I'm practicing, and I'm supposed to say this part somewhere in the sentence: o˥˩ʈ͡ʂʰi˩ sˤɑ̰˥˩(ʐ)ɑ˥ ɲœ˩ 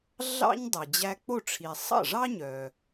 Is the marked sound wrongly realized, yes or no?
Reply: no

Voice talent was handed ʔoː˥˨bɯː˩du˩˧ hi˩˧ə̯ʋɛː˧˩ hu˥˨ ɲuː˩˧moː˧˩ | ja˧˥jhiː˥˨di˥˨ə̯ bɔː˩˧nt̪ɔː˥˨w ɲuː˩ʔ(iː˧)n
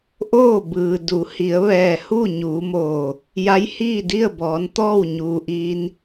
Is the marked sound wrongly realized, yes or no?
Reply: no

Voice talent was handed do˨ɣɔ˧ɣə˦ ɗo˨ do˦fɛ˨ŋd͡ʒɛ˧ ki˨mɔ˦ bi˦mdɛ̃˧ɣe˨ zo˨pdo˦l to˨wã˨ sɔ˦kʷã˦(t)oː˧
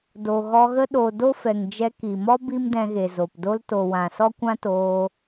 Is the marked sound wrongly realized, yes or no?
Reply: no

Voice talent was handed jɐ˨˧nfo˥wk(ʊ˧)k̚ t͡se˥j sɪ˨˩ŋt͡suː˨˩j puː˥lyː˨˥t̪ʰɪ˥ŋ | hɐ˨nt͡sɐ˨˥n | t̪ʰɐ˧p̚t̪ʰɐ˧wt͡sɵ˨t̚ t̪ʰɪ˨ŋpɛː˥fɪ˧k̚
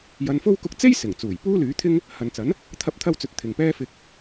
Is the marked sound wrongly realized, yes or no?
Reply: no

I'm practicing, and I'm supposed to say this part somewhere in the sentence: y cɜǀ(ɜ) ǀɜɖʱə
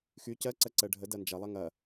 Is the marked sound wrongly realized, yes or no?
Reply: no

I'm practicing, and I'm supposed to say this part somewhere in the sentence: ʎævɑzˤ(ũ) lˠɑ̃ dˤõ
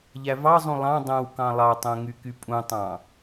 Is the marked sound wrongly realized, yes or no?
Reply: no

